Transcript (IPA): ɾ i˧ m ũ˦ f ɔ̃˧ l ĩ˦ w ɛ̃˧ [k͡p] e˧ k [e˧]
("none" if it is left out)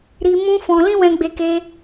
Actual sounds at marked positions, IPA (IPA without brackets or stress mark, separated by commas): ɡ͡b, e˧